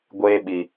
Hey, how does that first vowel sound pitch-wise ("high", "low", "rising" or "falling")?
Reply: high